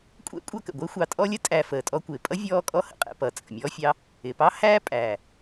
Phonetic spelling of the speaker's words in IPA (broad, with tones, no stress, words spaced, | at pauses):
kʷʼɛ̰˥kʷʼʌ˦kə̰˩ ɡʷɪː˥xʷɑ˨tʼɔ˥lʲə˥ tʼæ˨ fəː˩tʼɔ˥kʷɪː˩ pʼʌ˥vʲɔː˦ kʼɔ˦hə̰˨qʼɛ̰˨pʌː˩ t͡sʼə̰˩mʲɔː˥fʲɑ˦ | ɪ˩pɑ˥ hæː˥pʼæː˩